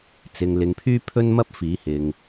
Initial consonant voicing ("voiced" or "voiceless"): voiceless